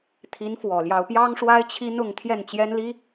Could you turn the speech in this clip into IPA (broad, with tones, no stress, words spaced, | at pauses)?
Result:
t̪ʰi˧˥nfwɔ˨˩ljɑ˧˥ʊ̯ pjɑ˥ŋʂwa˥ɪ̯t͡ɕʰi˥nʊ˥˧ŋ t̪ʰjɛ˥˩nt͡ɕjɛ˥n li˥